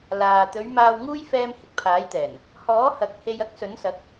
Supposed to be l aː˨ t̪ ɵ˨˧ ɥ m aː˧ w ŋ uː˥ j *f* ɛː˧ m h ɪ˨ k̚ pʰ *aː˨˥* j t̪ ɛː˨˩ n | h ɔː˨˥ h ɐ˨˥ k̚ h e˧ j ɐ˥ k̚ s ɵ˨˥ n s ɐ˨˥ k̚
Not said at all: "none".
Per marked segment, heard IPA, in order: f, aː˨˥

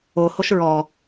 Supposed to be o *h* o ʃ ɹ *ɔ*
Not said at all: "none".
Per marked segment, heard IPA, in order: h, ɔ

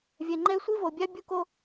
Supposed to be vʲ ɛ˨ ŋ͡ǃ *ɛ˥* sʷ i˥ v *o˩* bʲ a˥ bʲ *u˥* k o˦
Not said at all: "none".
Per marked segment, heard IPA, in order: ɛ˥, o˩, u˥

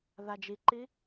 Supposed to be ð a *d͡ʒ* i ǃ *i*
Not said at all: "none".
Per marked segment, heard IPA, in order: d͡ʒ, i

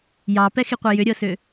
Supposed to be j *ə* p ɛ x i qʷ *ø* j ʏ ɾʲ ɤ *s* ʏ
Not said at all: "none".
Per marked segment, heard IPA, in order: ɑ, œ, s

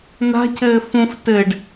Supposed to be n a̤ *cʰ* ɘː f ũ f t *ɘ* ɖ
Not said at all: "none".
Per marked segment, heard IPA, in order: cʰ, ɘ

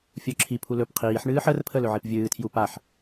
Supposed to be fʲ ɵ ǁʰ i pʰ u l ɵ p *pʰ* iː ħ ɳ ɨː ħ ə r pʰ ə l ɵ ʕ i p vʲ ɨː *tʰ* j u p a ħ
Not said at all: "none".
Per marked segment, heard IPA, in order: qʰ, tʰ

